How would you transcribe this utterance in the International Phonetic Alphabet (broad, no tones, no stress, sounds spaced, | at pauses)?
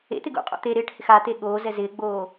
ḛ t̪ ɪ ɡ ṵ qʼ o̰ t̪ e ɾ ɪː ʈ h ɪ x a t̪ e ɠ oː z ɛ z ɪː ɡ͡b oː